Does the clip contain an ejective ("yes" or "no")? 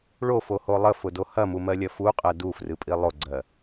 yes